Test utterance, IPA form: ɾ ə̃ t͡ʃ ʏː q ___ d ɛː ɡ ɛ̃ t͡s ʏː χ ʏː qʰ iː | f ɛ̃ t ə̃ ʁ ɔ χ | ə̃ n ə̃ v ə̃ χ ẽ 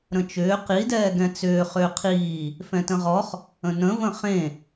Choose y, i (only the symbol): i